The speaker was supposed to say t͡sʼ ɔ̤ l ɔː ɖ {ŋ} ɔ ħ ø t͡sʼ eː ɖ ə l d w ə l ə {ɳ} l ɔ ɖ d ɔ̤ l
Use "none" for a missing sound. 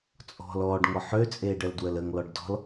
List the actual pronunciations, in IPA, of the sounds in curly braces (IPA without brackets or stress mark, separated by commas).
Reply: ŋ, ŋ